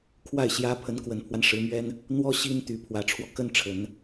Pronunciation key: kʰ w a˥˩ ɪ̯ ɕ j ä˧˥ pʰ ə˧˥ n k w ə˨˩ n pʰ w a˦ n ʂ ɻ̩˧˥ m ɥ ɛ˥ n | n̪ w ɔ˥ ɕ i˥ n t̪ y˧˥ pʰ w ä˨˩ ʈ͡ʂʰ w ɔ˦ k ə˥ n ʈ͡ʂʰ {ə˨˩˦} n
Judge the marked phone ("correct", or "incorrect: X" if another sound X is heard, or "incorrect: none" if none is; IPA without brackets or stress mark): correct